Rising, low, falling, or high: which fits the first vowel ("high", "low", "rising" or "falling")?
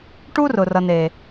high